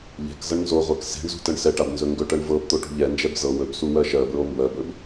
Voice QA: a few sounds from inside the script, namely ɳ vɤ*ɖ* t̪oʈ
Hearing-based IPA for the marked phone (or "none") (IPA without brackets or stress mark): b